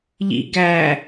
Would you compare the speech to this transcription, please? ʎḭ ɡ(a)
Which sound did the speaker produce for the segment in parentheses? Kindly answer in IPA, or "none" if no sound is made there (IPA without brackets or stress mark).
æ